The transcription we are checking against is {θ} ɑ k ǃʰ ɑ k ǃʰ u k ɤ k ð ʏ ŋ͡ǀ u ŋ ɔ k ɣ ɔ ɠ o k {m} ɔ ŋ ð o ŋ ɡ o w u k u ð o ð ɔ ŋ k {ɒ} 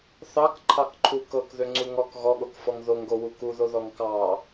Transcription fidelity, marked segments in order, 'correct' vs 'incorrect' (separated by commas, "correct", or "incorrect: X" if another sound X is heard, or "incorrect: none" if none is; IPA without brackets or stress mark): correct, incorrect: f, incorrect: ɑ